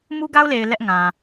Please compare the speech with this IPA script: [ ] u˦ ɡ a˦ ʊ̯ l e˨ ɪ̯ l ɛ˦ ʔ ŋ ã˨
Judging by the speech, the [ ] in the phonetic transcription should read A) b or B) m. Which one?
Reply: B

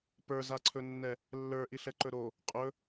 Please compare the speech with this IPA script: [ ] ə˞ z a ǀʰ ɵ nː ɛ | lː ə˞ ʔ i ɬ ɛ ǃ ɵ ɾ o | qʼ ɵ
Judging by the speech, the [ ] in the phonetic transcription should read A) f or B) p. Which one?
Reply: B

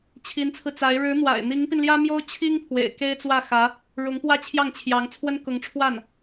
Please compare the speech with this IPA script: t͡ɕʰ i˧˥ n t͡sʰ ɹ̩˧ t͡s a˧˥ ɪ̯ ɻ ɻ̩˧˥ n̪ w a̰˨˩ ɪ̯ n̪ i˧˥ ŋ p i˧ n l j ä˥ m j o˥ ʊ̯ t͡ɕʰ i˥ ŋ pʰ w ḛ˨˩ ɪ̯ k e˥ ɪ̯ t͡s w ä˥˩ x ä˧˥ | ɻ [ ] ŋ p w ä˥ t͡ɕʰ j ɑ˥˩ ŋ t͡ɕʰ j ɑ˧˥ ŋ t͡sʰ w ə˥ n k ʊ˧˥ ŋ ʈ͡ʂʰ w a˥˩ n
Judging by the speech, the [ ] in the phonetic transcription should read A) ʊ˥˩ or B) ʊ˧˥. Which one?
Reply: B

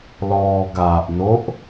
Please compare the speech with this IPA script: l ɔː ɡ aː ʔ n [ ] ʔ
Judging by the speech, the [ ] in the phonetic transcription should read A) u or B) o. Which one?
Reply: B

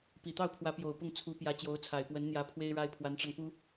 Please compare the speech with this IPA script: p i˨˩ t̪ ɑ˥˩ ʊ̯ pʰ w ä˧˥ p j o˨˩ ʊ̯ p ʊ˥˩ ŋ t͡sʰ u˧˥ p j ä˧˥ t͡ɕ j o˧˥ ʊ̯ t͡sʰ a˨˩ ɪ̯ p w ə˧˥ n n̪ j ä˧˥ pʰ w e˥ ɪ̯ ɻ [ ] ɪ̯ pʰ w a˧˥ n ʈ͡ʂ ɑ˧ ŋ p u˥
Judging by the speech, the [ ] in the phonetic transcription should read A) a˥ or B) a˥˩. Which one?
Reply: A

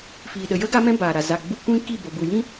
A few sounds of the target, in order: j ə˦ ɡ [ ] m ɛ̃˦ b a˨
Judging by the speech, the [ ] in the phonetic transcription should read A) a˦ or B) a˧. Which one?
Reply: A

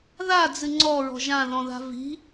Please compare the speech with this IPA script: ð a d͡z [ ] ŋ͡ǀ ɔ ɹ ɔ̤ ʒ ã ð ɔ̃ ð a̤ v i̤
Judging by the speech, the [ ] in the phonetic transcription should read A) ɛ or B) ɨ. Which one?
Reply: B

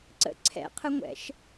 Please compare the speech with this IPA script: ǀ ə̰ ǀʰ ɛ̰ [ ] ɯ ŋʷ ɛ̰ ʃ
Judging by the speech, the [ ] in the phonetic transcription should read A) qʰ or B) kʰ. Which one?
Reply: A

